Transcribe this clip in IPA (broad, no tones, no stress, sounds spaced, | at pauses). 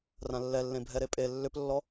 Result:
r ã lː ɛ lː ẽ bʱ ɛ ɾ e pʼ e lː ʏ p lː ɔ